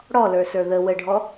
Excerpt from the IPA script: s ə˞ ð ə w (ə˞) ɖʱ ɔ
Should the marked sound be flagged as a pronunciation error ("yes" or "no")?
yes